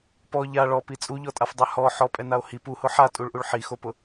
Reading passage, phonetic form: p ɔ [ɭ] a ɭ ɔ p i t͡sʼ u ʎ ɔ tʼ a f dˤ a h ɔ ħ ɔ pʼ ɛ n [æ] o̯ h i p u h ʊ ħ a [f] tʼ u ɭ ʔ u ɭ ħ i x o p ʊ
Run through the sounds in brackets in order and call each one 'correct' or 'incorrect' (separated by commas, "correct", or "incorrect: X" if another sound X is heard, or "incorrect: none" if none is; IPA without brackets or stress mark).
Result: incorrect: ʎ, incorrect: a, incorrect: none